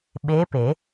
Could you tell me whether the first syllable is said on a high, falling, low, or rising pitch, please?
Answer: rising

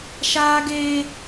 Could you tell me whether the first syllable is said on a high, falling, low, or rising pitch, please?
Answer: high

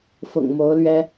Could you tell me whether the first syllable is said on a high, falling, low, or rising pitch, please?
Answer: low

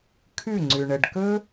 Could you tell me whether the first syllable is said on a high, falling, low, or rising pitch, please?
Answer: falling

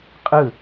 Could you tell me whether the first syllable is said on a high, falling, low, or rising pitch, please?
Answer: falling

